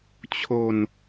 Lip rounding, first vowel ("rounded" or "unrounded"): rounded